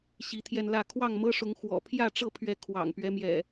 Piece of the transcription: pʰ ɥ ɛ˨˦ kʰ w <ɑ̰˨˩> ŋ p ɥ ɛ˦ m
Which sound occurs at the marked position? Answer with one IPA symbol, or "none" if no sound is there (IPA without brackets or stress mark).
ɑ̰˨˩